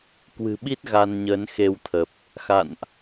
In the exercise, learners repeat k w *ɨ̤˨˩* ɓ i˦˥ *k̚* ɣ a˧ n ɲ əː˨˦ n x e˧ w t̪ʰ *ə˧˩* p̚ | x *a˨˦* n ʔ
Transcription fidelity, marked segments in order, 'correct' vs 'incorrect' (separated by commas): correct, incorrect, incorrect, incorrect